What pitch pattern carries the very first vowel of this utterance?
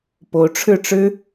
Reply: rising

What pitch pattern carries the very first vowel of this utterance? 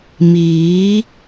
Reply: rising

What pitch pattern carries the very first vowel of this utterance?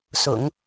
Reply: low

